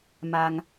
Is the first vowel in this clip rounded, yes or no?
no